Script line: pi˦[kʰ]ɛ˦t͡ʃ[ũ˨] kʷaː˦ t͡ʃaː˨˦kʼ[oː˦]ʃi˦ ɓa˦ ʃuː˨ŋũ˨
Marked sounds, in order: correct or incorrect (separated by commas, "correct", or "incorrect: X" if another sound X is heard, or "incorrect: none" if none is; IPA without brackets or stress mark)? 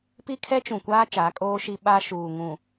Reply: correct, correct, correct